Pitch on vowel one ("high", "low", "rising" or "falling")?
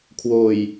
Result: low